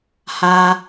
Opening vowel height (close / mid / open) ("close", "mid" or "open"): open